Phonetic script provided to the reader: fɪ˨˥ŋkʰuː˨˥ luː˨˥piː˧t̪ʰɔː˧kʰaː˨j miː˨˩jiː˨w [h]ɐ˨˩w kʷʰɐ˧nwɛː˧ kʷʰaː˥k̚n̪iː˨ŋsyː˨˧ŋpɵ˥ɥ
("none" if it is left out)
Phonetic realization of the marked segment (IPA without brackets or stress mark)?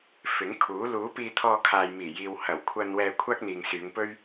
h